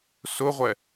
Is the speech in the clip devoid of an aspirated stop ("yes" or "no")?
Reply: yes